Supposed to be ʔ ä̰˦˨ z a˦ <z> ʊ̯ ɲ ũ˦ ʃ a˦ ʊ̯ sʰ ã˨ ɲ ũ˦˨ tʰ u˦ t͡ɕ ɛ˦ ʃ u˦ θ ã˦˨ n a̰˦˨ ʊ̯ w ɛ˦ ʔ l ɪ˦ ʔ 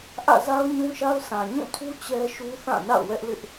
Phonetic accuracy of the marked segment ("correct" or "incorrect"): incorrect